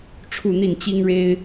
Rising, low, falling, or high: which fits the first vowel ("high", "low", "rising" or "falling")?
falling